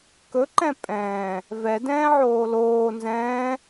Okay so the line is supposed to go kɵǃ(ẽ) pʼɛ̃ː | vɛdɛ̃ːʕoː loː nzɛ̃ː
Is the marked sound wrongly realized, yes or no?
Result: yes